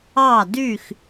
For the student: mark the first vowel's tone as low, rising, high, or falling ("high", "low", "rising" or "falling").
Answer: falling